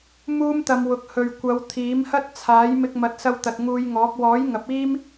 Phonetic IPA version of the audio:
muː˥mt̪ɐ˧mwʊ˨˥k̚ hɵ˨ɥ kʷɐ˨˧w t̪ʰiː˨˥mhɐ˥t̚ t͡sʰaː˨˥j mɪ˧k̚mɐ˨˥t̚sɐ˧w t̪ɐ˨t̚ŋuː˧jŋɔː˨˥k̚ wɔː˨˥j ŋɐ˨˥p̚iː˥m

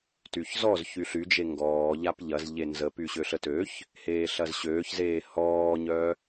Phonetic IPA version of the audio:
tyçzɔz çyɬyd͡ʒe ŋɡɔː ʎapʎɐz ʎenzəpy ɕøɬətøç | heːɬɐzɕøːçzeː hɔːɲœ

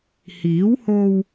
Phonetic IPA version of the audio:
hiː˨˥who˧w

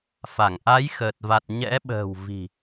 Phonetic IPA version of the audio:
fa˧˩ŋʔa˨˦jxəː˨˩t̚va˨˩t̚ ɲɛ̰˧˥ɓə̤ː˨˩w vi̤˨˩

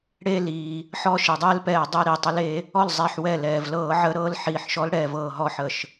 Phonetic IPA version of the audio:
ɽeː˦liː˩ | ħɔ˦ʃi˩dˤɛː˦lpɛː˧˩ dˤɛ˦ ɾi˧˩˧tˤə˨˦l e˨˦ | ɔ˥˩l zˤɛ˧˩ħ wɛ˧˩lɛː˩vlɤː˧˩˧ ʕə˨˦ɾɤ˨˦l ħiː˩ħʃɔ˨˦lɽɛː˩v ɤː˩ɦɔ˧˩˧ħə˩ʃ

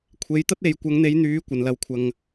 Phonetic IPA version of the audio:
kʷʰe˨˧j t̪ɐ˥t̚e˨˧j kʷɐ˨˧ŋn̪e˨˧jn̪yː˨˧ kʷɐ˨˧nlɐ˧w kʷʰɐ˧ŋ

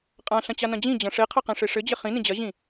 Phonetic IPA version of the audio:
qʼãɬɐ̃t͡ɕanɐ̃ d͡ʑĩd͡ʑɐ̃ ʂeqʰɐqẽʂe ʂɘd͡ʑɪ χĩnĩ d͡ʑɐʑĩ

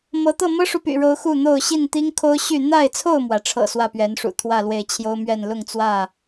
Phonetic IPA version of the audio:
mɤ˨˦t̪ɤ˥˨ mɤ˦ʂu˨py̰˨˩ɻo˨˦ʊ̯ xu˥˨n̪o˥˨ʊ̯ ɕi˥˨nt̪i˦ŋkʰo˦ʊ̯ ɕy˥˨ n̪a˥˨ɪ̯t͡sʰo˥˨ʊ̯mwä˩ʈ͡ʂʰɤ̰˨˩ swä˥˨pɥɛ˨˦nʂṵ˨˩t̪ʰwä˥˨ lwe˥˨ɪ̯ t͡ɕʰjo˦ʊ̯mɥɛ˥˨n lʊ˥˨ŋt͡swä˥˨

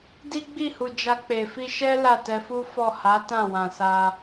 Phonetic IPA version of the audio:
di˦ɡ͡bi˦˨hu˨ d͡ʒa˧k͡pe˨ fi˧ʃɛ˦ la˦˨tɛ˧fu˦ fɔ˦˨ ha˨˦tã˦˨wã˨ sa˧

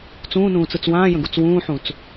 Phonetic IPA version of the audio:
t͡sũːnũːt͡sɯt͡s wãːjə̃ɡut͡s wũːħũt͡s

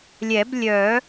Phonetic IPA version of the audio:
lʲɛ˨˩˦blʲœ˨˩˦

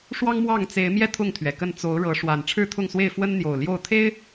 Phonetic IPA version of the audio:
ʂwɑ˦ŋmwɑ˥˨ŋt͡se˨˦ɪ̯mjɛ˥˨ t̪ʰʊ˥˨ŋt̪ʰɥɛ˩kə˥˨n t͡so˨˦ʊ̯ɻɤ˨˦ʂwa˨˩n ʈ͡ʂʰɻ̩˥˨t̪ʰʊ˥˨ŋswe˥˨ɪ̯ fwə˦nn̪jo˨˩ʊ̯ljo˥˨ʊ̯ t̪ʰe˦ɪ̯

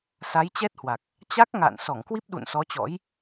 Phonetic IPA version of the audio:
sa˨˦jt͡ɕɛ˦˥t̚hwa˨˩k̚ | t͡ɕa˦˥k̚ ŋa̰ː˧˨nsɔ˧˩ŋkwi˦˥p̚ɗṵ˧˨n sɔ˨˦t͡ɕɔ̰˧˥j

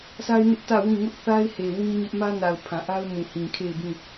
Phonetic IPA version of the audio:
sʰa˦ɪ̯nɪ˦ʔ tä˦˨wĩ˦˨ ŋʊ˦ʔθa˦ɪ̯he˨ wĩ˦ɲɪ˦ʔ mä˦na˨ʊ̯ pʰã˨ʔa˦ʊ̯mũ˨hĩ˨ kʰe˦˨ɪ̯bĩ˦˨

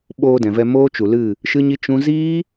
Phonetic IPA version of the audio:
ɓoː˧dɛ̃˨vɛ˧ moː˦t͡ʃu˨lɨ˦˨ | ʃɨ˦ɲi˦ t͡ʃũ˦ ziː˦

